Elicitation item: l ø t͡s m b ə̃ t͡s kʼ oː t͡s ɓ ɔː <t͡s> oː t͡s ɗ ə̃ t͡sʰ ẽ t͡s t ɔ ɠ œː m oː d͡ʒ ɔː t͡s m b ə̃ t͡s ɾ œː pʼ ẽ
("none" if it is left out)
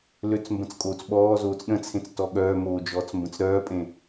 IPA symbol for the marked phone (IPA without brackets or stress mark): z